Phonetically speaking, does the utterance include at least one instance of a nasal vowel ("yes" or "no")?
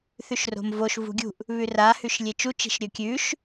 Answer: no